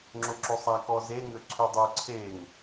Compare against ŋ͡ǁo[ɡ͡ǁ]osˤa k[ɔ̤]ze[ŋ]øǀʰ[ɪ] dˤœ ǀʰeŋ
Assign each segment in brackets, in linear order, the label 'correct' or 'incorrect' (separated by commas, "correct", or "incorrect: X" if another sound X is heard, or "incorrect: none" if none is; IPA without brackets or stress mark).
incorrect: ǁ, incorrect: ɔ, correct, incorrect: y